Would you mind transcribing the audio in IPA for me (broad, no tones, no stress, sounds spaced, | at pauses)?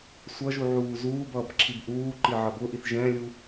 sʷ ʌ ʒ u ʕ uː z uː b ʌː b ǁʰ i b ʔ uː ǃ i ʕ ʌ b ʊ ʔ i θ ʒ ɛ̃ lʲ u